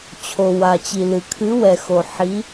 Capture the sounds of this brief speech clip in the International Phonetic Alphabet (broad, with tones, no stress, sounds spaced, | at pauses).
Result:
t͡ɕʰ o˩ w a˩ t͡ɕ i˩ l ɨ˩ kʰ ɨ˨˦ w ɛ˩ x o˩ ħ i˨˦